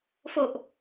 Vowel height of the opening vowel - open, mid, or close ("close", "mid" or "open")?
mid